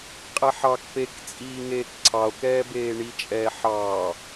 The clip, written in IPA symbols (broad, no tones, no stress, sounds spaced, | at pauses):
qʼ ɛ ħ ɑ k p e k t͡sʼ iː ŋ eː k ǀʰ ɑ o̯ k ɛː b eː ɳ i t͡ʃʼ ɛː ħ ɑː